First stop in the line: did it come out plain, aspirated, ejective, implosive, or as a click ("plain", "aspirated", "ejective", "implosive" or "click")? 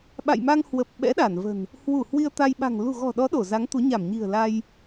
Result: implosive